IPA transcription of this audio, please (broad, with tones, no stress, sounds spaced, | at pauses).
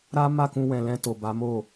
ɾ a˦ m a˦˨ k ũ˧ w ɛ̃˨ l ɛ̃˧ t o˨ b a˨˦ m o˦˨